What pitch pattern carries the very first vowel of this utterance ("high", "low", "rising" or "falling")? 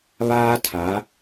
high